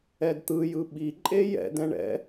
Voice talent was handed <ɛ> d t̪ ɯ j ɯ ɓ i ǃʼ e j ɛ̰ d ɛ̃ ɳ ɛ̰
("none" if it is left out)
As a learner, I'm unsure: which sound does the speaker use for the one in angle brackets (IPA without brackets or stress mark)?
ɛ